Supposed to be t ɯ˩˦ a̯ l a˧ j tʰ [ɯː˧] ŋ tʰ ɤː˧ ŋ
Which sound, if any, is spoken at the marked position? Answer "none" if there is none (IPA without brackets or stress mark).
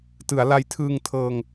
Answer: ɯː˧